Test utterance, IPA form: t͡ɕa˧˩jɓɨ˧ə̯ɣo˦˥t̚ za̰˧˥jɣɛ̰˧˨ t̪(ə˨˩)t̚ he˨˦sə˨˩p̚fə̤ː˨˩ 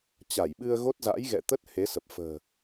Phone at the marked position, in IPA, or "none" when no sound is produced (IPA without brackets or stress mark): ə˦˥